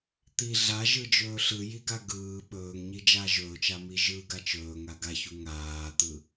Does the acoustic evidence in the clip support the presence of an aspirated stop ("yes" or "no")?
no